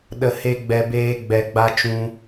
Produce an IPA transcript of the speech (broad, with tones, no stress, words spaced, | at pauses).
ɗə˧he˦ɡ͡bɛ˧beː˦ ɡ͡bɛ˧ɡ͡ba˦ t͡ʃũ˦